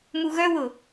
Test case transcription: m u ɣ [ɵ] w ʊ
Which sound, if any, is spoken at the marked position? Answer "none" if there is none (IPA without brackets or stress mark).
œ